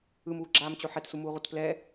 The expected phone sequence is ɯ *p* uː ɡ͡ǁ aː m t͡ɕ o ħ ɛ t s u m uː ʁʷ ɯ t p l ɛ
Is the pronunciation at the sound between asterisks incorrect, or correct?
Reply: incorrect